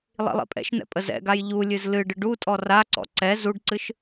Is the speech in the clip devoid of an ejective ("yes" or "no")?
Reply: no